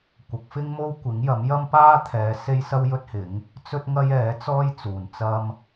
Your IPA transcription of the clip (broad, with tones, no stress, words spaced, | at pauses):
kʷɐ˨˥k̚fɪ˥ŋ mo˥wkʷɪ˨˥ŋjɐ˨˥mjɐ˥m paː˥t̪ʰɛː˨˧ se˥jsɐ˥wjɵ˥t̚hɪ˨˥ŋ | t͡sɵ˥t̚ŋɐ˥jɛː˨˥ t͡sɔː˥jt͡suː˨n t͡sɐ˥m